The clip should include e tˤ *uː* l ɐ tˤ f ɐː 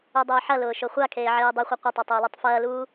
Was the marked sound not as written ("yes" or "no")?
yes